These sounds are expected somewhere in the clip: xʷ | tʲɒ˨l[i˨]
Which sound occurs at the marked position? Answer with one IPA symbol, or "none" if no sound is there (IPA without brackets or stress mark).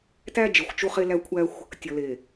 e˨